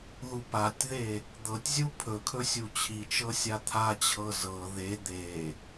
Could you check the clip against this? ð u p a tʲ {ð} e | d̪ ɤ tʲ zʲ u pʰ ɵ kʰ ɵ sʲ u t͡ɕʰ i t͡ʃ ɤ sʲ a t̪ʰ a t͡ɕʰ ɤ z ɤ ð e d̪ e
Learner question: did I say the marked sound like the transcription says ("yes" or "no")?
yes